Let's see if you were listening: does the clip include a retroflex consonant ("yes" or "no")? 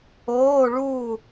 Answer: yes